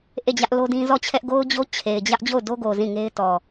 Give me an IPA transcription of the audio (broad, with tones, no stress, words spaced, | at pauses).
ʔe˦˨d͡ʑä˦ʔ lo˦dĩ˦ zɔ˦˨t͡ɕʰɛ˦ʔ ɡo˦ʊ̯d͡ʑo˦ t͡ɕʰe˨ɪ̯d͡ʑä˦ʔ d͡ʑo˦˨ʊ̯do˦ɡo˨ zĩ˦˨ŋe˦ɪ̯ tɔ˨